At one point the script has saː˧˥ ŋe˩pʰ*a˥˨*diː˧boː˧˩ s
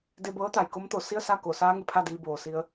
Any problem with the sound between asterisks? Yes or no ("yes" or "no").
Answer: no